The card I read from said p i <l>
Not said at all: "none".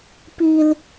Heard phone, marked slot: l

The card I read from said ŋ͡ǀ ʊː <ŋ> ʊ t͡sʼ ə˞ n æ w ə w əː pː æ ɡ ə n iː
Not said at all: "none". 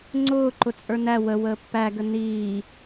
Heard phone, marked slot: ǃ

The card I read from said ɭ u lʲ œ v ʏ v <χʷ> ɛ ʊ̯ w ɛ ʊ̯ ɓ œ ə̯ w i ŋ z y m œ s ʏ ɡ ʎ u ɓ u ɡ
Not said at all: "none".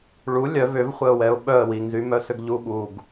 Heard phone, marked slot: χʷ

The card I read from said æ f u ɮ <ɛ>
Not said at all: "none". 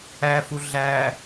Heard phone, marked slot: æ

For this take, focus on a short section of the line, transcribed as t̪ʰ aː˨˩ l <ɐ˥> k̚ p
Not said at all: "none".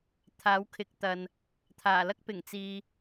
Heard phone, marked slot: ɐ˥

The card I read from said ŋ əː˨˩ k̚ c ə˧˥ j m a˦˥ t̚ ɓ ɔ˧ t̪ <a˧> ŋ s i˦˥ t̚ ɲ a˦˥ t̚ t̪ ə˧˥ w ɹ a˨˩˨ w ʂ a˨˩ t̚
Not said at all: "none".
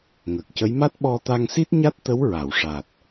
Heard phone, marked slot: a˧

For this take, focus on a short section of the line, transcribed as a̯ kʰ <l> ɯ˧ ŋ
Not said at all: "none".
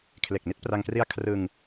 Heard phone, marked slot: r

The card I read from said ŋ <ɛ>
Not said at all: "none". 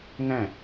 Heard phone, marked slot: ɛ̃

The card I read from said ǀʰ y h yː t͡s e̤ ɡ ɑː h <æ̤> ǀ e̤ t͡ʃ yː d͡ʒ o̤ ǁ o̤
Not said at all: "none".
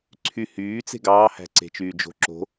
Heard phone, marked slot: æ̤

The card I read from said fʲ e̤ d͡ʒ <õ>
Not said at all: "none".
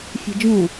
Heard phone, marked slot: õ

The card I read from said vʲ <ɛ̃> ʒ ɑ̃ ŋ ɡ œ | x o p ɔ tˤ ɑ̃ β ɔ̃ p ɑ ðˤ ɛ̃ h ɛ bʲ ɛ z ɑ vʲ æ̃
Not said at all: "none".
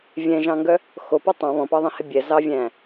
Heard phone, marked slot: ɛ̃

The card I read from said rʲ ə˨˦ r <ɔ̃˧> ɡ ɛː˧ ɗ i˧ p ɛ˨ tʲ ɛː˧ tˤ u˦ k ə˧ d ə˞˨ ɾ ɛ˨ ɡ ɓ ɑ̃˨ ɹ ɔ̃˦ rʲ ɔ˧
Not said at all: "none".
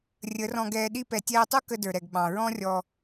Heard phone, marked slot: ɔ̃˧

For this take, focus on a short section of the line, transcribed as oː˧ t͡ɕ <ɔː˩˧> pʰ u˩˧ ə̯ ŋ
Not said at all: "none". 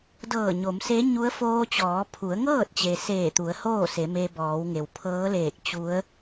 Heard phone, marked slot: ɔː˩˧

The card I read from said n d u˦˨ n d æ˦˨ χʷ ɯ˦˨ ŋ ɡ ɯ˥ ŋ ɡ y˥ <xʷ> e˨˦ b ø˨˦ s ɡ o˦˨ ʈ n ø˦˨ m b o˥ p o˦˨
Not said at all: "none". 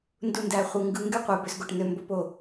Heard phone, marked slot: qʷ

